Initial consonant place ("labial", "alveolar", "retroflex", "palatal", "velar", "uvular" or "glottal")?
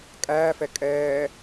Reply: velar